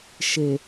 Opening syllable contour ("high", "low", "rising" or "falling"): low